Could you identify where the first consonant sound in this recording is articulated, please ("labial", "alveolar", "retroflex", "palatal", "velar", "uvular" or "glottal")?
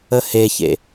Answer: glottal